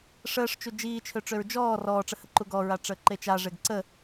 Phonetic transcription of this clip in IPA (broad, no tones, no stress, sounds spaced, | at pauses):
ʂ əː ʂ t͡ʃ u d͡ʒ iː t͡ʃʰ ø ʈ͡ʂ ø ɹ d͡ʒ ɔː r ɔː ʈ͡ʂ ə h ə ǃ u ɡ ɔ ɹ a ʈ͡ʂ əː ǃ e t͡ʃ a ʐ e ɡ ǀ ə